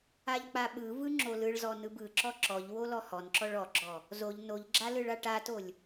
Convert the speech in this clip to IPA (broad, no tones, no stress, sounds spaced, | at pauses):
a ʎ k͡p a ɓ ɯ v ɯ ŋ͡ǁ o l ɯ ɭ z ɔ n ɯ b ɯ ǁ ɔ ǁ ɔ ʎ w o l ɔ h ɔ n ǁ ɔ ɭ ɔ ɡ͡ǁ ɔ | z o ʎ n o ʎ ɡ͡ǁ a l ɯ ɭ a ʈ a t o lʲ